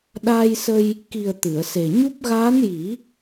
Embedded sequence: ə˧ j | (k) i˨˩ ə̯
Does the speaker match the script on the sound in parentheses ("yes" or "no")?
yes